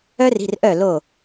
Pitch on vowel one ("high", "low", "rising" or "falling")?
high